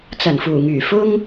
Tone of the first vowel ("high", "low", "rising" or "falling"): low